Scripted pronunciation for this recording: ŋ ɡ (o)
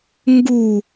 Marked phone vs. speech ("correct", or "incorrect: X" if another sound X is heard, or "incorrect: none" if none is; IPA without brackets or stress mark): incorrect: u